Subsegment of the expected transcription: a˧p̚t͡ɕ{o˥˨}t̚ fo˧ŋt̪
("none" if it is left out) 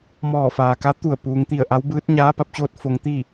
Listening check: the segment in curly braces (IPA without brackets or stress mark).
oː˥˨